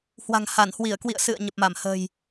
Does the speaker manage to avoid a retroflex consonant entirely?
yes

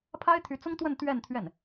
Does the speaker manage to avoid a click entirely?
yes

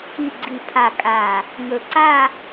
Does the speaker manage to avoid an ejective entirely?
no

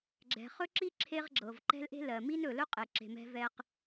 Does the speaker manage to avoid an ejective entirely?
no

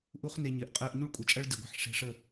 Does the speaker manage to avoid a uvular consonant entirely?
no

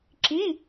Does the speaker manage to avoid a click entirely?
no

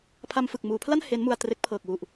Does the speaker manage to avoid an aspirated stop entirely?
no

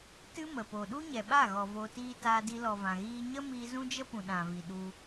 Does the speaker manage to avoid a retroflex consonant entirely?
yes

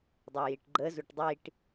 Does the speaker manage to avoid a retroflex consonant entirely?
no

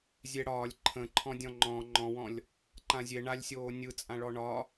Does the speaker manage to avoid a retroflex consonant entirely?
no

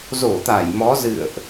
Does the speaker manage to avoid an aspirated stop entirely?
yes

